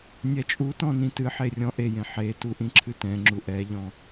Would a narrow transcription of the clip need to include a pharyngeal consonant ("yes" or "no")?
yes